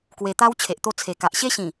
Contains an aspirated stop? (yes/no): yes